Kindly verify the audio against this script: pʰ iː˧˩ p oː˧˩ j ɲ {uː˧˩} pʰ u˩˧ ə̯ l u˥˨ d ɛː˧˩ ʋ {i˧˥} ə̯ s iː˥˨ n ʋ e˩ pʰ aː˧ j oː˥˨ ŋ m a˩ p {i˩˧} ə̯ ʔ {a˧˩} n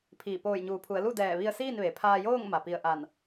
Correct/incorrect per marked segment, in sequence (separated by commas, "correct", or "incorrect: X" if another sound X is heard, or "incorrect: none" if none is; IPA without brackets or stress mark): incorrect: uː˩˧, incorrect: i˧, incorrect: i˧˩, correct